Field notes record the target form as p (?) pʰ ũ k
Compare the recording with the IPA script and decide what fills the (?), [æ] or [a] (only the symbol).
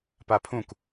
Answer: a